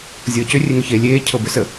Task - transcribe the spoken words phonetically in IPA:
zʲ ɤː c ʏ rʲ e ŋ ʏ ç eː lʲ eː cʰ ɤ b ʏ s ə

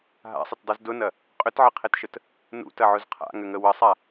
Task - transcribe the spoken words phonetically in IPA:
ɦ a̰ sˤ ə t dˤ u z d ʊ n ɐ | qʼ ʏ t ʕ ə qʰ e t ʃ ə t | n ṵ t ɐ ʕ ʊ z qʰ a̰ ŋ ʏ ŋ ə w ə sˤ a

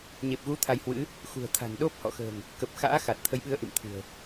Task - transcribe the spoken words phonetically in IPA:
ɲ e˨˩ p̚ ɣ u˨˦ t̪ʰ a˧ j h w ɨ̰˧˥ | x ṳ˨˩ ə̯ t̪ʰ a̤˨˩ n ɗ o˦˥ p̚ h ɔ̰˧˨ x ə̤ː˨˩ ŋ | k ə˨˩ p̚ x a̰ː˧˥ x a˨˩ t̚ t̪ʰ ə˨˦ j ɓ ɨ˨˦ ə̯ ʔ ḭ˧˨ m t̪ʰ ɨ̤˨˩ ə̯

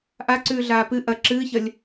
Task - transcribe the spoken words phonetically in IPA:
ʔ a ǀ ʉː ɮ aː p ɨ ʔ ɐ ǁ ɨː ç ɐ lʲ

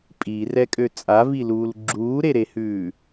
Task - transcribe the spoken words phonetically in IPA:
pʼ i r ɛ kʼ ø t͡sʼ a v i l uː l ɡ͡ǁ uː ɾ e ɾ e h ʉː

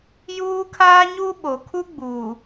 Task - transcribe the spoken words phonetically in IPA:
j uː˦ kʰ aː˦ ɲ u˦ ɓ o˨ kʰ u˦ ɡ͡b uː˨

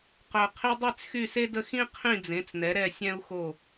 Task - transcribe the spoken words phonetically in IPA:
q œ˩ qʰ i˧ dˤ i˥˩ t͡s x y˥˩ s e˥ d ə˥˩ x ĩ˥ qʰ ĩ˥˩ d͡z ẽ˩˥ t͡s n ɛ˩˥ ɾ ɛ˥˩ sʲ ɛ̃˥ u̯ x o˥˩

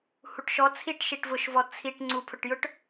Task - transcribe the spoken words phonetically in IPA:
h u ʈ ʃ ɔ t͡sʰ i ʈ ʃ i ʈ v ʊ ʃ v ɔ t͡sʰ i ʈ ŋ͡ǀ u pʰ ʊ ʈ j ʊ ʈ

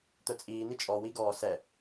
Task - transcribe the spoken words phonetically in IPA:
t̪ œ t͡sʼ iː n̪ i t͡ʃʼ ɔ w i ɡ ɔː s ɛ

